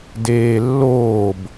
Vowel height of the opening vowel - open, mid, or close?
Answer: mid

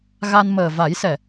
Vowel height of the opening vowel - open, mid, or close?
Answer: open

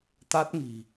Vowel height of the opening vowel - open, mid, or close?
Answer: open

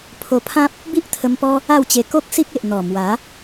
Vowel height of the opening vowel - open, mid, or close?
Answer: mid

